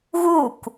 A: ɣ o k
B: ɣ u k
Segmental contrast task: B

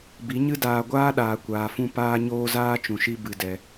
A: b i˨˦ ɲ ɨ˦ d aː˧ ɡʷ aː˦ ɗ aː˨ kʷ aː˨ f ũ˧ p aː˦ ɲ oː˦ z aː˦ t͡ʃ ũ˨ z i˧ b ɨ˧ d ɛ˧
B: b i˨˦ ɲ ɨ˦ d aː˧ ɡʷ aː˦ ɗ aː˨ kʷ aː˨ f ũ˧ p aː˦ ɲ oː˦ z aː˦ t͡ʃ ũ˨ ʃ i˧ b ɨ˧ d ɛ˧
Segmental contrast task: B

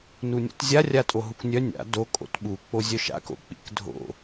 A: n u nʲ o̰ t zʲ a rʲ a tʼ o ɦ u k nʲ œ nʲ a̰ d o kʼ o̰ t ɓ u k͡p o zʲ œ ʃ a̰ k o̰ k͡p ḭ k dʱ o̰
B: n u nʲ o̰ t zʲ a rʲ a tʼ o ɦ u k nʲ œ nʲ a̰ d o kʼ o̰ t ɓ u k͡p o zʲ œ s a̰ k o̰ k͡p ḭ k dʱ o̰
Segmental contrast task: A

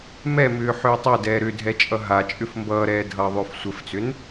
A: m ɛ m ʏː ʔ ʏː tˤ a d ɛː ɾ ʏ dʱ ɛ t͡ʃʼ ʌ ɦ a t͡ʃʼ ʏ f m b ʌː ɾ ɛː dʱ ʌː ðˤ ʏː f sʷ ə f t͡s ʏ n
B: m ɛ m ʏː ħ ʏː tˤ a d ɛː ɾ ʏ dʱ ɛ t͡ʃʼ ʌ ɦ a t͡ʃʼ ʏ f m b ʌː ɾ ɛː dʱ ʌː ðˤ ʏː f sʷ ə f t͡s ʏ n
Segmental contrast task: B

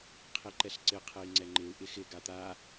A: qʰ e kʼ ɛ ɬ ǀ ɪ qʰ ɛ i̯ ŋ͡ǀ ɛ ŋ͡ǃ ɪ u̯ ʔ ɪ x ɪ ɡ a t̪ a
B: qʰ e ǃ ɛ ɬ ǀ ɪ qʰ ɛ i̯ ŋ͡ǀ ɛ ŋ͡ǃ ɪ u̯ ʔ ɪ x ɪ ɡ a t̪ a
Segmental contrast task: B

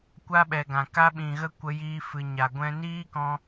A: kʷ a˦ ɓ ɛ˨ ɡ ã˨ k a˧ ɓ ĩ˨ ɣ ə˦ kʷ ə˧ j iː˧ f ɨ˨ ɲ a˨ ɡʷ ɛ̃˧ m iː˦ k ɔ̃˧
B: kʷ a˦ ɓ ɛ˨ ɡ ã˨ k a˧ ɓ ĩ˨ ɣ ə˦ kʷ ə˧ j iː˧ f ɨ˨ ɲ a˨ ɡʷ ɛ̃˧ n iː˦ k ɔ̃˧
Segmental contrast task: B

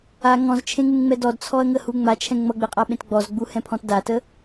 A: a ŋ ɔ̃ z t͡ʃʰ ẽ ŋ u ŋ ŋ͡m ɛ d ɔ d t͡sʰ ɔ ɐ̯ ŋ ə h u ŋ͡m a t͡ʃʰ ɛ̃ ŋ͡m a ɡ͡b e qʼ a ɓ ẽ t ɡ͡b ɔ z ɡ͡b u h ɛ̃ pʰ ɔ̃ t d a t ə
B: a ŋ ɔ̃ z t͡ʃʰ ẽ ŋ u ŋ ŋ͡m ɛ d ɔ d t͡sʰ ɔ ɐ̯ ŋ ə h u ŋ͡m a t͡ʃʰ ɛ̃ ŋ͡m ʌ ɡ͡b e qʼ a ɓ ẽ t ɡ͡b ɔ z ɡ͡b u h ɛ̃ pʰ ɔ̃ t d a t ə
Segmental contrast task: B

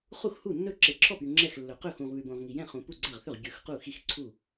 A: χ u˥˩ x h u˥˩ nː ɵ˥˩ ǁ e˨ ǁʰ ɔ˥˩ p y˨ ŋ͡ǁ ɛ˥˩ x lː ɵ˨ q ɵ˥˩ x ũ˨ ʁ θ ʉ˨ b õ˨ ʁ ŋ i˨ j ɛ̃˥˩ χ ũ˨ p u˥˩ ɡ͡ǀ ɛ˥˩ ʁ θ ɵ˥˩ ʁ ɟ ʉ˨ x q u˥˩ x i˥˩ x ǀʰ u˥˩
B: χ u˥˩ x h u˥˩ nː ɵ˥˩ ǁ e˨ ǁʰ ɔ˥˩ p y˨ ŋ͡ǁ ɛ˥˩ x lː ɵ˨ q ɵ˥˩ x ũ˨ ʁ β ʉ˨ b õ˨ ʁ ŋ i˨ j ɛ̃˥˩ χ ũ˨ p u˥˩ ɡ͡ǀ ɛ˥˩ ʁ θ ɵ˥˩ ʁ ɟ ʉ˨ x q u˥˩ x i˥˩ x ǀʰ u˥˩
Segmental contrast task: B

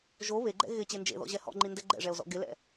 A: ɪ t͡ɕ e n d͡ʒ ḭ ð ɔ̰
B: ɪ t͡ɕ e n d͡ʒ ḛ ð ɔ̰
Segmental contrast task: B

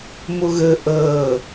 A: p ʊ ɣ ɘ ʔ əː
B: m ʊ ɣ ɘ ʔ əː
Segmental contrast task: B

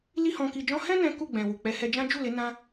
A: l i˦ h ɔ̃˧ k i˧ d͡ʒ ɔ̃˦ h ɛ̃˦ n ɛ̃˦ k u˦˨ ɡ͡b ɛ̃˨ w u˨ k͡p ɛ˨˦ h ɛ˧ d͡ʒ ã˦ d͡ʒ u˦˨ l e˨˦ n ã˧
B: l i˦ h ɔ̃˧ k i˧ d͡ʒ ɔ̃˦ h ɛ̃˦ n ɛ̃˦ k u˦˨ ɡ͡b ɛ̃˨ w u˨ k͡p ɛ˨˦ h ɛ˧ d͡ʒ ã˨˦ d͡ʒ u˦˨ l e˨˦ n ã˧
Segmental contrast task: A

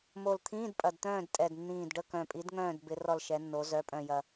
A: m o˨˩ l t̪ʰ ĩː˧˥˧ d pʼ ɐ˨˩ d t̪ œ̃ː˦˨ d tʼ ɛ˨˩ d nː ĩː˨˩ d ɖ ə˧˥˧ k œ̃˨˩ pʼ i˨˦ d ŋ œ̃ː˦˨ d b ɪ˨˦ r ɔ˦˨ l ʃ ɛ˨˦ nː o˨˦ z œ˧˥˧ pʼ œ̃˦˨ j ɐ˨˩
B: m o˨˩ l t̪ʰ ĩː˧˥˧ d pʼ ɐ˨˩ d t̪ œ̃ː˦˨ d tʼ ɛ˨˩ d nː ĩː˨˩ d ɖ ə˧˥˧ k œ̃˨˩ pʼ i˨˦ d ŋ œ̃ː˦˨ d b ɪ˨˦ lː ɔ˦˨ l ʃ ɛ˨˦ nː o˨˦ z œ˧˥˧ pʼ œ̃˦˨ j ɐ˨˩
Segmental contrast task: A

